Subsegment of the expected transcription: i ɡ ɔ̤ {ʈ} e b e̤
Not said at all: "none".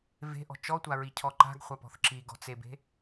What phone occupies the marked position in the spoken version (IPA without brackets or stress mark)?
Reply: t͡s